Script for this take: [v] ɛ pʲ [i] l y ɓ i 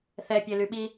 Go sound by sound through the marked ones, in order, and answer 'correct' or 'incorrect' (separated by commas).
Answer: incorrect, incorrect